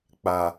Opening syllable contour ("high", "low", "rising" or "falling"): low